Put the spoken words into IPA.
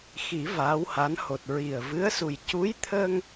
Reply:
x i˨˩˦ v aː˧˥ w h a˧˥ n h o˨˩ t̚ ɹ i˨˩ ə̯ v ɨ˧˥ ə̯ s u˨˩ j c u˧˥ j t̪ʰ əː˧ ŋ

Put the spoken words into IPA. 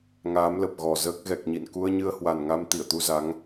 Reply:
ŋ aː˨˦ m l ə˨˩ p̚ ɣ ɔ˨˩ z əː˦˥ k̚ ɣ ɛ˨˩ k̚ ɲ ḭ˧˨ n k u˧ ə̯ ɲ ɨ˧ ə̯ h w a˨˩ n ŋ a˧ m t̪ i˧˩ ə̯ t̪ u˧ z a˨˦ ŋ

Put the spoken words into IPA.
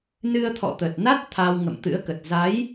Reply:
n ɨ˧ ə̯ t̪ʰ ɔ̰˧˨ t̪ ə˨˩ t̚ n a˦˥ t̚ t̪ʰ a˧ w ŋ ə̰˧˨ m t̪ ɨ̰˧˥ ə̯ k ə˨˩ t̚ z a˨˦ j

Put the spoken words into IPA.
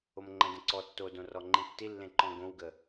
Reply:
o m ŋ͡ǃ ə̃ d ə̃ ǀ ɔ tː o d õ r ɔ ŋ͡ǃ ĩ tː i lː ẽ ǃ ɔ̃ ɡ õ w ɡ ə

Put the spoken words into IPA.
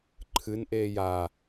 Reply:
ǃʰ ɨ n ʔ eː j a

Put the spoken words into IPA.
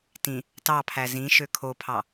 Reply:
t ĩ | t ɑ pʰ æ z ĩ ʃ ø kʰ o pʰ ɑ

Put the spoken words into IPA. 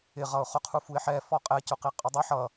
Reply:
ɪ ʁ ʌ ʊ̯ χ ʊ qʰ u f u ɪ̯ ħ ɛ f ɔ qʼ ɛ c ʊ q i qʼ ʊ dˤ ɪ ħ ʌ

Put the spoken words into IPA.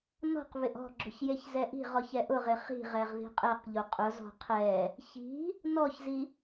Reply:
n ɔ̤ q β ɪ ʔ ɔ̤ ɡ͡ǁ ʊ ç j e ç z ɛ ʔ i̤ ʁ ɔ ç ɛ ʔ ʊ ʁ ɪ χ i̤ ʁ ɛ ʁ ð i̤ qʼ ɛ q ʎ o qʼ ʊ z ɔ̤ qʰ ɛ | ç i̤ | n ɔ ç z i

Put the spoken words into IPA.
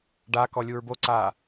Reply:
ɖ a k ɔ lʲ u ɹ b o ǀ a

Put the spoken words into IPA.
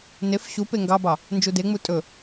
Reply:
n e f ɕ u p e ŋ ɡ ɑ b ɑ | n d͡ʒ u d e ŋ͡m u tʼ ɵ

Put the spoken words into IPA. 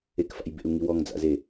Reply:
e k f a̰ j b ḛ u̯ ŋ i w ɔ ŋ d͡z a̰ z e

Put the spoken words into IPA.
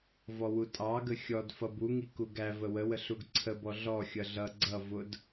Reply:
v ɔ w u tʼ ɑ ɡ ə xʲ ɔ d f ʌ b u ŋ i k u ɡ æ v ə w ə w ə ɬ u ɡ ǀʰ ə b ɔ ɮ ɔ xʲ ʌ ɮ ʌ ɡ͡ǀ ʌ v ʊ d

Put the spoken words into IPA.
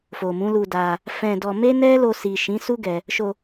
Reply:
f o˨ m ũ˨˦ l u˧ d a˧ | f ɛ̃˧ d ɔ˧ m e˦ n ɛ˦ l o˧ s i˨ ʃ ĩ˨˦ s u˦ ɡ ɛ˧ | ʃ o˧

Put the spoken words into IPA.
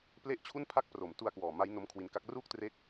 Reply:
p l e˥˩ ʔ t͡ɕʰ u˥˩ n pʰ a˥˩ k̚ p r o˨˩ m t u˧ a̯ k w ɔː˨˩ m a˦˥ j n o˦˥ m kʰ w i˧ n k a˦˥ k̚ r uː˥˩ k̚ t r eː˦˥ k̚

